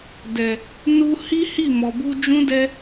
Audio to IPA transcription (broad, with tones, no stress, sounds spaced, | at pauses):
d ɛ˨ | n u˧ h i˦ h i˦˨ m ɔ˨ b u˧ d͡ʒ ũ˦ d ɛ˦